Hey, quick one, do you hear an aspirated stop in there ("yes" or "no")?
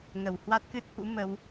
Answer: no